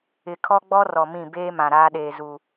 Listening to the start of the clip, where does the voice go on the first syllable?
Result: low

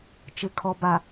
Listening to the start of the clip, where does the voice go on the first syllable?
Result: low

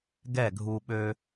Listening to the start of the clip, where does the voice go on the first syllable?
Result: falling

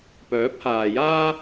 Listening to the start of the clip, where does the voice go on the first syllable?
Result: rising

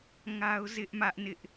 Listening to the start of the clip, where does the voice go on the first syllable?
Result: high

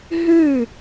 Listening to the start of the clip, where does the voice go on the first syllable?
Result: falling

